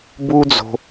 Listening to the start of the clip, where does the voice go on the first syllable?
high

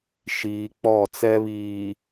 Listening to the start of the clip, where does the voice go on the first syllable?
low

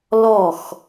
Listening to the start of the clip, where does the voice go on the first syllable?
falling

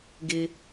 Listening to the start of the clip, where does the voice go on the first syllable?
low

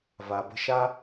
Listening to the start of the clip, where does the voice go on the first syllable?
low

